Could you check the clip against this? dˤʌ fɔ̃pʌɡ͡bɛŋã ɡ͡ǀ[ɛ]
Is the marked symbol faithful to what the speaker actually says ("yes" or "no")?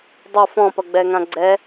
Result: yes